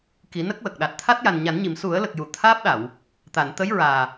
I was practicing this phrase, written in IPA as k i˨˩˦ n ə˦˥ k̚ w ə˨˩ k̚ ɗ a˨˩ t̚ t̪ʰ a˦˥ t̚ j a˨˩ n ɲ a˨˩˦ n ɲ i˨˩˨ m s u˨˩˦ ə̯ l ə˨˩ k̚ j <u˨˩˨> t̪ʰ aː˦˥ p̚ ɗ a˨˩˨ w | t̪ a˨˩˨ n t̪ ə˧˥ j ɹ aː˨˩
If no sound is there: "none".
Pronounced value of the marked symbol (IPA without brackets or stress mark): u˨˩˨